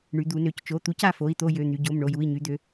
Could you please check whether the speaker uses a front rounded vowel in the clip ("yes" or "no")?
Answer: yes